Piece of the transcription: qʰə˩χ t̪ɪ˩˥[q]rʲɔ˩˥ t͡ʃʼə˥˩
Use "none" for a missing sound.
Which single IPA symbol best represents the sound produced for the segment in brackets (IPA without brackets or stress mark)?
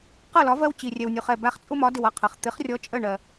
χ